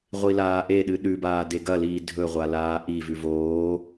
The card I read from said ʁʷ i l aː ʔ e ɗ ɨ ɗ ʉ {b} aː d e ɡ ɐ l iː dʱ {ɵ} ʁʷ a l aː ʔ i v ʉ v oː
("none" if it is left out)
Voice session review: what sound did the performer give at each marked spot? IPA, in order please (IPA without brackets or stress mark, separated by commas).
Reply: b, ɵ